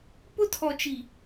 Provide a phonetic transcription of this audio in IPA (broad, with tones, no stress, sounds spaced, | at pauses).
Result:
p ʊ˦ tʰ ɔ˨ t͡ʃ i˨